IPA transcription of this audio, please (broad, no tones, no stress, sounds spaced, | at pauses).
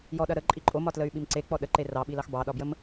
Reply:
j ɔ ɗ ɐ ɾ ə ǃʼ i ǃʼ o m ɒ t l ə y̯ ɓ i m ǀ e k͡p ɔ ɗ ə ǃ e r ɑ ɓ i l ɑ x b ɑ ɗ ɒ b j ə m